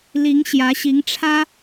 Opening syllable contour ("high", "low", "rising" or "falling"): rising